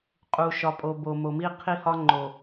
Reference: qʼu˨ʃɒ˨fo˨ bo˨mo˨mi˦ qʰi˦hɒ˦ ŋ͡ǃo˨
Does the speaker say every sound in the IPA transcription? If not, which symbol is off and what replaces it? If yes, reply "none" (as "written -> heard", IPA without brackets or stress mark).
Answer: f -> pʼ